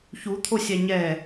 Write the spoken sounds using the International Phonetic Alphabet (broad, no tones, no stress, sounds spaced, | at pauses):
ç u t̪ʰ o sʲ a ɲ ɛ